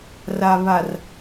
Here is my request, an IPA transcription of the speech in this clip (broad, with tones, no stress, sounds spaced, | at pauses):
r a˨ β a˨ r